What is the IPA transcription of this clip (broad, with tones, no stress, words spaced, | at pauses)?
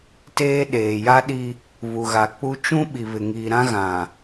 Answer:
teː˦ ɗeː˨ja˦ɗi˦ | βu˨ɣa˨k͡pu˦ t͡ʃũ˦ ɓi˨βɪ˨ ŋiː˨ɾã˦ ɣã˨